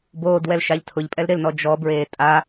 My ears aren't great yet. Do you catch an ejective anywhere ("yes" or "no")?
yes